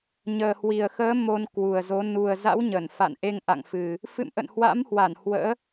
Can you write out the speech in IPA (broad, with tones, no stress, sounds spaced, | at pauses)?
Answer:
ɲ əː˨˩ h w i˨˩ ə̯ x əː˨˦ m o˧ n k w u˨˩ ə̯ z o˨˦ n u˨˩ ə̯ z a̰˧˥ w ɲ ə˧˩ n f a̰˧˨ n ʔ e˧ ŋ ʔ a̰˧˨ ŋ f ɨ˨˩ | f ɨ̰˧˨ m ʔ ə̰˧˨ n h w a̰˧˥ m h w a˧˩ n h w ə̰ː˧˥